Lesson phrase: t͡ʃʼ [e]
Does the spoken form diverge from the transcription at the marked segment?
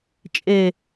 no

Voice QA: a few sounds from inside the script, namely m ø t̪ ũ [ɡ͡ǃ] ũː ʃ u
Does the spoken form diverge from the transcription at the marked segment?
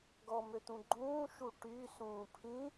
no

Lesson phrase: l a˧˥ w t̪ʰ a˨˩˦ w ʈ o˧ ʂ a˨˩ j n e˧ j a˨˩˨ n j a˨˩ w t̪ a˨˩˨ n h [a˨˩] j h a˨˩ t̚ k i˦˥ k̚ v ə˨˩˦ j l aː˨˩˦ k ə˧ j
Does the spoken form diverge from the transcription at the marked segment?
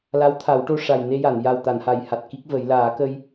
no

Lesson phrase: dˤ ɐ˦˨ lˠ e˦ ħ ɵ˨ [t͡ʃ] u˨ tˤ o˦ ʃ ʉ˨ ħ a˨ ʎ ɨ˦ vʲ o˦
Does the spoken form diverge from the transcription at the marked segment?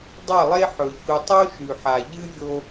yes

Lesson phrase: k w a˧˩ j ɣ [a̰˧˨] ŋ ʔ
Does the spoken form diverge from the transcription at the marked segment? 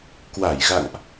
no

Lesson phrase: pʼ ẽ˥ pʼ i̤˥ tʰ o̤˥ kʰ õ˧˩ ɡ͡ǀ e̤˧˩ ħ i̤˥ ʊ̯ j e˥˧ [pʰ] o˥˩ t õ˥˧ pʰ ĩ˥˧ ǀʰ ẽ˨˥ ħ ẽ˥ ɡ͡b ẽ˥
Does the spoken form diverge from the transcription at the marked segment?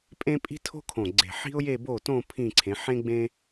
yes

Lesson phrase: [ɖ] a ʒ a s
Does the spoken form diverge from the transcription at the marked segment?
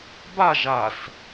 yes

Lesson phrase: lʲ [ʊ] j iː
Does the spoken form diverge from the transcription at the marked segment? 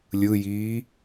yes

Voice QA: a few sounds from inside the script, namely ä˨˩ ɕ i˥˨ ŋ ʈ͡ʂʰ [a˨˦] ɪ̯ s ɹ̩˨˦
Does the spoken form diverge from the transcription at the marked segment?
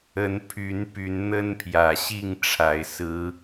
yes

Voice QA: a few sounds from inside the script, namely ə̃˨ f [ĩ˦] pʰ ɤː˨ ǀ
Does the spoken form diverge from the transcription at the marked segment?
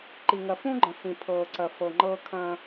yes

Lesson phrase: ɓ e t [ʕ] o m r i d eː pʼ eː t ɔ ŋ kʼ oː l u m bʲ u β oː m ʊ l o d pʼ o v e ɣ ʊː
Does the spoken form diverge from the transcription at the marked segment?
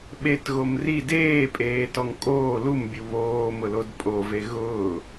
yes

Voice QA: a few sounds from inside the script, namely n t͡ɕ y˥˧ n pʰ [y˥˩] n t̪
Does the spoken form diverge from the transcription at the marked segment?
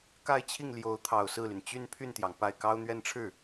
no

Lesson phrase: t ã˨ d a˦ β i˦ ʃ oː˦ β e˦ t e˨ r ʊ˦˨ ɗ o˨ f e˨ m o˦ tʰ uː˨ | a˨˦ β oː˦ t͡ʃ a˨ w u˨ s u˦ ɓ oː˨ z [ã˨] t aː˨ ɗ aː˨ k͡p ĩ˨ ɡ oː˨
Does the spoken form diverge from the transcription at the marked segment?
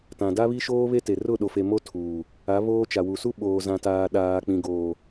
no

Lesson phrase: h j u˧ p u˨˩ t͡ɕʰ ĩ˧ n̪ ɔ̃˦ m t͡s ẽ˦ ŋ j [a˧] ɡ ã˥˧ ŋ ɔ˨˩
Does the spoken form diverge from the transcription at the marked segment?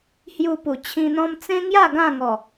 yes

